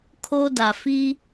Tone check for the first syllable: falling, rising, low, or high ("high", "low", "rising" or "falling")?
high